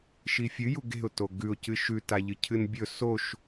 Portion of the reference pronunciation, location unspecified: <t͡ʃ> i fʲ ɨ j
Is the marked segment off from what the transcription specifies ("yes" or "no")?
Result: yes